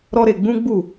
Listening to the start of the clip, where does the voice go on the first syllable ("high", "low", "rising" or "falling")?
high